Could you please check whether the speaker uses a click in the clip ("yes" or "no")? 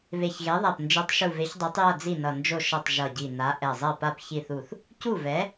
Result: no